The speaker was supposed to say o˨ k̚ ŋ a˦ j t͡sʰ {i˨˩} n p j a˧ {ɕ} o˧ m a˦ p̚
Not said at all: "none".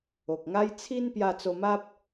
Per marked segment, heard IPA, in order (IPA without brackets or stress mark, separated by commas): i˦, t͡s